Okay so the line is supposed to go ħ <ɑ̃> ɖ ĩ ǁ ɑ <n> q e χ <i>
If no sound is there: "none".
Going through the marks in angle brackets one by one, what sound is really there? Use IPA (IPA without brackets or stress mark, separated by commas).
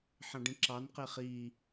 ɑ̃, n, i